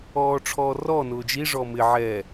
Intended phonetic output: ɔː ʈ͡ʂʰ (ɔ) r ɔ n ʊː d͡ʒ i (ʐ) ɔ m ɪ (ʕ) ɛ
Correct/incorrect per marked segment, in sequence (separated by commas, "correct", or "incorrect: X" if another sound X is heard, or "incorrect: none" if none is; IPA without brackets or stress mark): incorrect: ɔː, correct, correct